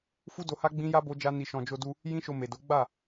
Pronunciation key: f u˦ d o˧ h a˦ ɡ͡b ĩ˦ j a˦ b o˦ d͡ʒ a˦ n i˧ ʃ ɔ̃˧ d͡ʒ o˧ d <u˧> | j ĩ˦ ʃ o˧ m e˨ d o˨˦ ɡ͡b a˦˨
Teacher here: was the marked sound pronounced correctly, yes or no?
yes